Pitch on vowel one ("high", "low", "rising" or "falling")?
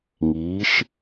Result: rising